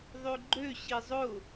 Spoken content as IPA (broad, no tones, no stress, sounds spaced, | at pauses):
ðˤ ø ɡ͡ǃ ø ɕ i zˤ ʊ